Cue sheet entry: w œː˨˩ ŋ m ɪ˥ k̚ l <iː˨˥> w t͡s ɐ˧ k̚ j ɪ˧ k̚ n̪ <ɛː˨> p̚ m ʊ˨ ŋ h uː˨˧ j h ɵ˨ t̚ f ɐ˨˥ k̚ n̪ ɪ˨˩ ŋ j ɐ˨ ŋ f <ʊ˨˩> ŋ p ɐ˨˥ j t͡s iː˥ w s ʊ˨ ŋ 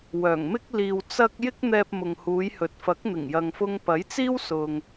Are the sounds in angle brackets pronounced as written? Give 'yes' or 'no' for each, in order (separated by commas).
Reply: no, yes, no